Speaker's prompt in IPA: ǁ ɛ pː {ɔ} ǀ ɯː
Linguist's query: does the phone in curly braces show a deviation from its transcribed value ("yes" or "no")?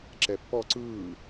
no